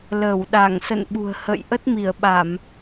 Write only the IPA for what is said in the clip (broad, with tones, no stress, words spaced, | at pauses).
lə˧˩wɗa˧˩ŋsə̰˧˨n ɓṳ˨˩ə̯hə̰˧˨j ʔə˦˥t̚mi˧˩ə̯ɓa˧˩˨m